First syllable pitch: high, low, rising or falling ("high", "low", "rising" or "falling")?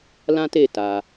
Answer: high